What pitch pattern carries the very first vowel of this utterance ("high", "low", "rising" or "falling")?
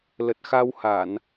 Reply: low